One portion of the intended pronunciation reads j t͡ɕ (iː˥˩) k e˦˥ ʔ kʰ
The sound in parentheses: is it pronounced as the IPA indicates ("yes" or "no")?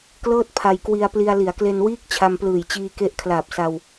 no